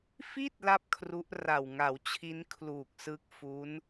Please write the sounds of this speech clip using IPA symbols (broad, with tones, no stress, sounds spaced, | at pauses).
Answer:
f i˥˩ t̚ l a˥˩ p̚ kʰ r u˦˥ ʔ r a˨˩ w ŋ a˩˦ w t͡ɕʰ i˦˥ n kʰ l uː˨˩ k̚ s ɯ˦˥ k̚ f u˦˥ n